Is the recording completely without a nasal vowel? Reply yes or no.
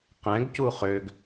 no